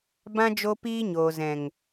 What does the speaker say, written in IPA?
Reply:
b ã˧ d͡ʒ o˧ p iː˧ ɲ oː˨ z ɛ̃˨ ŋ

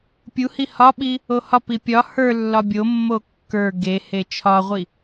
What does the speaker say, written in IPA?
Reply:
pʲ u h i h ɒ ɓ i | o h ɒ p i pʲ ɒ h ə˞ lː ɒ bʲ o mː o kː ə˞ ɡ e h e t͡ʃʰ ɒ ʁʷ i

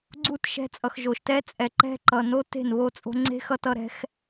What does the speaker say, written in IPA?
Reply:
ɡ͡ǀ u˦˨ t ʃ ɛ̤˧ t͡sʼ ʌ˨ x ʒ o˨ ʃ t ɛ˦ t͡sʼ ɛ˨ ǃ ɛ̤˦ ǃ ʌ˨ n o˦ t e̤˦˨ n β o˧ t͡sʼ o̤˧ ŋ͡ǀ e̤˦ x ʌ˧ t ʌ˧ ɾ ɛ̤˦ x

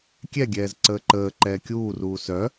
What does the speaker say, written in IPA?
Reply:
kʲ ɛ ɡʲ ɛː z ǀ əː ǃ əː ǃ ɛː kʲ uː r uː s œ

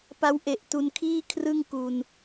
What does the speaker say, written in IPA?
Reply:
p a˦˥ w ʔ e˨˩ ʔ t u˧ n kʰ iː˥˩ kʰ r ɯ˥˩ ŋ k u˧ n

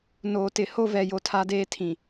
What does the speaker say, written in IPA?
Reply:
n oː˨ t ɪ˨ h o˦ v ɛ˨ j o˦ tʰ a˦ d eː˦ tʰ ĩ˨

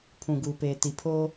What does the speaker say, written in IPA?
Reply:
pʰ ũ˨ ɡ uː˨ p eː˨ t i˨ pʰ oː˦

